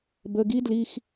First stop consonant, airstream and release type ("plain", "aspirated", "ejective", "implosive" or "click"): plain